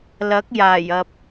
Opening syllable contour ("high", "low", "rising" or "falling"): rising